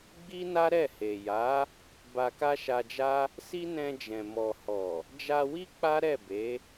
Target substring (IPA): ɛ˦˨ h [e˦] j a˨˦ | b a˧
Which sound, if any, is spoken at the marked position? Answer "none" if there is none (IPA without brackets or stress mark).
e˨